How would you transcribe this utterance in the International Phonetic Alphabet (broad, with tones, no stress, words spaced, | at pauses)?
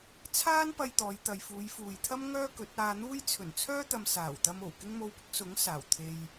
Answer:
t͡sʰaː˥n pɐ˧j t̪ɔː˨˧j t̪ɐ˨jfuː˨˧jfuː˨jt̪ʰɐ˥m ŋœː˥kɵ˨˥t̚aː˧n̪uː˥j t͡sʰɵ˨˩n t͡sʰœː˥t̪ɐ˨m saː˨˩wt̪ɐ˧mo˨˩w kɪ˥ŋmo˧wpʊ˥k̚ sʊ˨˥ŋ saː˨˩wt̪ʰe˧j